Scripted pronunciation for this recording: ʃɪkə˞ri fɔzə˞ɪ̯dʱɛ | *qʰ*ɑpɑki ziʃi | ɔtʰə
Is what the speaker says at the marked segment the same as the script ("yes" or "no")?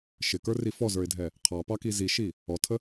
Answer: yes